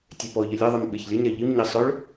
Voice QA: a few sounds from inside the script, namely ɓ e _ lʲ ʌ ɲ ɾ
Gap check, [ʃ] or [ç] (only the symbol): ç